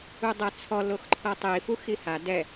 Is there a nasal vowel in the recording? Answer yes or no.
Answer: no